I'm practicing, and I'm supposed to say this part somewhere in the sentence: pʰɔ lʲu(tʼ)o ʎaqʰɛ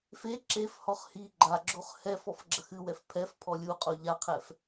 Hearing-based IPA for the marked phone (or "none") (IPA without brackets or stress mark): qʼ